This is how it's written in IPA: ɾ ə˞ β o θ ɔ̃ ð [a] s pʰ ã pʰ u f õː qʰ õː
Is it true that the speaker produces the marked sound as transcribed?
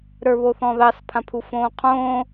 no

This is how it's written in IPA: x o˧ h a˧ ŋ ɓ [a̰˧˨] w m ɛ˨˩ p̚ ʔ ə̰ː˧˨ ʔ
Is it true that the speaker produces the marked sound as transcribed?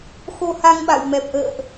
yes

